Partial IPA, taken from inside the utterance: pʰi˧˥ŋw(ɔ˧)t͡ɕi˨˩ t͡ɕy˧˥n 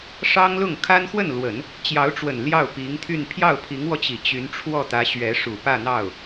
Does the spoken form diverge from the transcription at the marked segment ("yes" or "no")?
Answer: no